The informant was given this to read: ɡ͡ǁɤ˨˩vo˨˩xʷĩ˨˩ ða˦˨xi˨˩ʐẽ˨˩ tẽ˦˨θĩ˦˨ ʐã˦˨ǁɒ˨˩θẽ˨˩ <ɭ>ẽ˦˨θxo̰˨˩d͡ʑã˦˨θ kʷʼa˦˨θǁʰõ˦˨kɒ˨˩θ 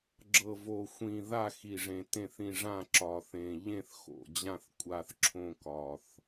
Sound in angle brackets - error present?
yes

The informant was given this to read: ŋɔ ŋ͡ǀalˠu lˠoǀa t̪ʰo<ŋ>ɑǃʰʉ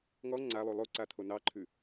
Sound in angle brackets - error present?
yes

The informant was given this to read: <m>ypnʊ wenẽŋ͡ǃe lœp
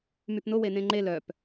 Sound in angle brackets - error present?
no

